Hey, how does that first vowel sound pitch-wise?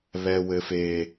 high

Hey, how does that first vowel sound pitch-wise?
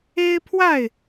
high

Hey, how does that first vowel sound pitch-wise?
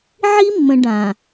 high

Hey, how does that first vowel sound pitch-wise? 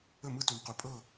falling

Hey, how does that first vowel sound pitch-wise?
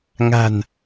low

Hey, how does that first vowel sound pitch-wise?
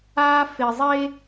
high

